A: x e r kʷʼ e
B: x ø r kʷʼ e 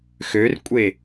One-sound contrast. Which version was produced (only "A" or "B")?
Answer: B